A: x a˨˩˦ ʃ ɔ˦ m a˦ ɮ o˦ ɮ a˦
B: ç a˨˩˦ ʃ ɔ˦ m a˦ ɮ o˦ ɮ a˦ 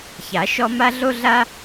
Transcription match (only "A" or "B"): B